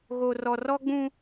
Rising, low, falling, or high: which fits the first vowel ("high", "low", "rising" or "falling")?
low